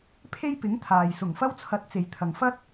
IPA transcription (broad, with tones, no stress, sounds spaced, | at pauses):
pʰ e˥ j p ɪ˨˥ ŋ t̪ʰ aː˨ j s ʊ˨˩ ŋ f ɐ˥ w t͡sʰ ɐ˨˥ t̚ t͡s e˨ j t̪ʰ ɐ˨ ŋ f ɐ˥ t̚